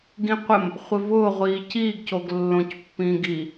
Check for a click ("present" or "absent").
absent